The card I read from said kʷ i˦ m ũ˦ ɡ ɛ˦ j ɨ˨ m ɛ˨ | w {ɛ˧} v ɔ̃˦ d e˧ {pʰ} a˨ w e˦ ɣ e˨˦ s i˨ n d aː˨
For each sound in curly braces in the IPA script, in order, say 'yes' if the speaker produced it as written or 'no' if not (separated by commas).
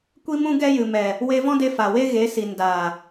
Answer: no, no